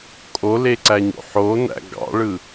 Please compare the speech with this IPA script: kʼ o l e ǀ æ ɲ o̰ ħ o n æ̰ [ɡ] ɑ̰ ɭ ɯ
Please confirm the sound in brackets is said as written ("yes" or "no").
yes